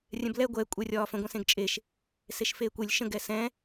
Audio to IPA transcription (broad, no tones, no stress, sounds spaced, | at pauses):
rʲ ɛ̃ b l ɛ ɡʷ ɛ kʷʼ ɛ rʲ ɒː f ə̃ ɡʷ ɛ̃ s ẽ ɡ t͡ʃʼ e ʃ | s e ʃ f eː kʷ e lʲ ʃ ə̃ ɡ ɛ s ɛ̃